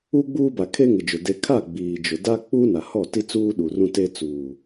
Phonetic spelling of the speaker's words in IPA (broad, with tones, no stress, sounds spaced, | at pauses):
u˦ ɡ͡b uː˦ b a˨ kʰ e˦ ŋ ɪ˨ d͡ʒ ʊ˨ d e˨ kʰ a˦˨ ɡ͡b iː˨ d͡ʒ ʊ˨ d a˦ k͡p u˦ n a˨ h ɔ˦˨ t i˦ t͡s uː˦ ɗ u˨ r ũ˦ t e˦ t͡s uː˨